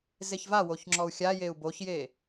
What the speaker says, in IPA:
z e ç v a w o ç ŋ͡ǁ ɔ u̯ xʲ a j e u̯ b o ç j e

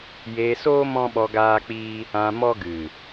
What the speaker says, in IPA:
j eː˧ s oː˦ m ɔ̃˦ ɓ ɔ˧ ɡ aː˦ k͡p iː˦ | ã˧ m ɔ˦ ɡ ɨ˨

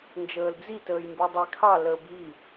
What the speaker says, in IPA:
n d͡ʒ əː l d͡z i t əː j m b ʉ dˤ i kʰ ɑ l əː b i

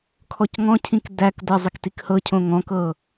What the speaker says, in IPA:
kʰ ɔ c ŋ ɔ̃ cʰ ĩ k d æ k d ɤ zˤ ɪ k t i k h ɤ cʰ õ ŋ ɔ̃ k ɤ

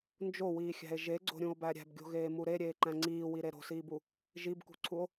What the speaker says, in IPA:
n d͡ʒ o w iː xʲ æ̤ e̯ ʒ e ɡ͡ǀ o̤ ɾʲ ũ o̯ b æ ɾʲ æ̤ b ɡʲ o̤ ɣ eː m u ɾ e ɾʲ eː ǃ æ̃ ŋ͡ǀ iː w i ɾ e ɾ o̤ s iː b u | ʒ i b k ṳ ǀʰ u o̯

